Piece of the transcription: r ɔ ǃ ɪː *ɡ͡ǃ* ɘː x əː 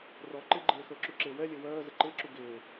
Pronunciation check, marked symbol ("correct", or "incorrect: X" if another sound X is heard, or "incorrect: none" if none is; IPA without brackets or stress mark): correct